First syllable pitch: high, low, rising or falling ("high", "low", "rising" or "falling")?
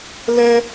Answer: high